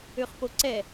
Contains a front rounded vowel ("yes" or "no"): yes